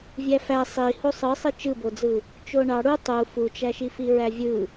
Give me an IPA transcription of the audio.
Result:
vʲæfæ sˤi husˤɯsˤi t͡ʃɯbod͡zɯ | t͡ʃoɳɑ ɽu tˤu fut͡ʃæʃifi ɹævʲɯ

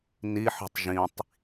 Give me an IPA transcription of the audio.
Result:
niħi̤tˤ ʒĩtˤ

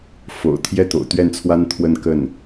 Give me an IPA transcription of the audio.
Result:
fo̰˨˩ʊ̯t̪ʰjɛ˥˩ t̪o̰˨˩ʊ̯t̪ɥɛ˥˩nt͡sʰwa˥n t̪ʰwə˥˧nkə˥˩n

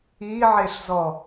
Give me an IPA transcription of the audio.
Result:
iʕeɬzɔ

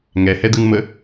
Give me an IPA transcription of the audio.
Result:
ŋɛhɛdɯŋmə

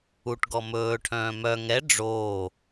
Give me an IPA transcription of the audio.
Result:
uʈɡɔ mɵːʈʰœ̃ː mœ ŋɛ ɖ͡ʐoː

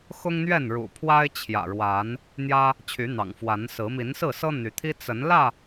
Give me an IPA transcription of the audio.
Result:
xʊ˦ŋn̪ɥɛ˥˨n ɻṵ˨˩pʰwa˦ɪ̯t͡ɕʰjä̰˨˩ ɻwa˨˦n | n̪jä˦ | t͡ɕʰy˨˦n̪ɑ̰˨˩ŋfwa˨˦nsɹ̩˨˦ mi˨˦nsɹ̩˥˨sɤ˦ n̪y˨˦t̪ʰi˦ t͡sə˨˦nlä˥˨

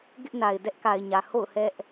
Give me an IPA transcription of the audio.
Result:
ɡɪ˦ʔna˨ɪ̯ dɛ˦ʔka˨ɪ̯ɲä˨ho̰˦˨ʊ̯ hɛ˦ʔ

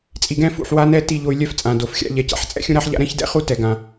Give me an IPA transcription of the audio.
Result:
t͡sʼi˧ɡɛ̃˥fṵ˧ħ wa˥nɛ˥ ti˧ʎo˧y̯ lʲœ˥ft͡sʼã˧ do˧fxʲa̰˥ ʎɛ˧ca̰˥ħt͡sʼɛ̰˥ xʲũ˥ɾa˥ħʎa̰˥ɾɛ̃˥ç dɛ̰˥χu˥tɛ˧ ɡã˧

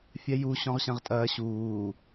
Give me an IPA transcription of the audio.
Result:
fʲɛju ɕɔ̃ʁɕɐ̃ʁtʼɐː ɕuː

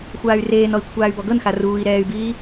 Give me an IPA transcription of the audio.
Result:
xʷaːy̯reːnɔi̯ kʷʰaːy̯bɔɡɤnxa ruːi̯ ɾɛːy̯biː

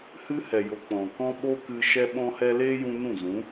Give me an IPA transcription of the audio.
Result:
hɨ˦hɛ˨jo˨ k͡pɔ̃˨kɔ̃˦ ɓo˦kɨ˧ ʃɛ˦ɓɔ̃˦hɛ˦ leː˦jũ˧ nũ˦˨zũ˨˦

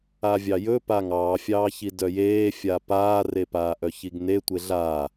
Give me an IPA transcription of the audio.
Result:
avʲɑjɵ paŋɑːfʲɑːçi dœjeːfʲa paːre paːʔœçiɡne tʷeɮaː

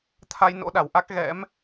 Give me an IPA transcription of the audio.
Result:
t̪ʰa˧j no̰˧˥ɗa˧˩w ʔa˦˥k̚ɣɛ̰˧˥m

